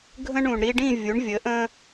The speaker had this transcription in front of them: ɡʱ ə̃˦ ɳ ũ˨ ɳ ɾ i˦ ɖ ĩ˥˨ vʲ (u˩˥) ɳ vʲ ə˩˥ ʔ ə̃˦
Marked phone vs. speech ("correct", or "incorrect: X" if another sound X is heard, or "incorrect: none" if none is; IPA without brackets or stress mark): correct